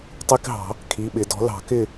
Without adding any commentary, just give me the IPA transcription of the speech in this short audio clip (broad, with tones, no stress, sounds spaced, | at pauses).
tˤ i˧˥˧ k ɦ ɑ̤˨˩˦ | kʰ i˩˧˩ ɓ ɪ˨˩˦ d ɔ̤˩˥ l ɑ̤˨˩˦ k ɪ˥˨